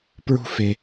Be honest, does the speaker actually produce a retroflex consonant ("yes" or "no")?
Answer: no